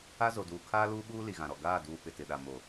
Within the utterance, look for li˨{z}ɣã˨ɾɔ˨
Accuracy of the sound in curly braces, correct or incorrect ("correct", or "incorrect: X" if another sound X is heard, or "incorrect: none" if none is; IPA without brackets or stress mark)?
incorrect: none